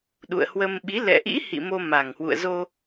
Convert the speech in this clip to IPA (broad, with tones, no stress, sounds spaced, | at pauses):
ɗ ṵ˧˨ ə̯ h w ə˧ m ɓ i˨˦ l ɛ̰˧˨ ʔ ḭ˧˥ h ḭ˧˨ m o˧ m a˨˩ ŋ h w ṵ˧˨ ə̯ z o˧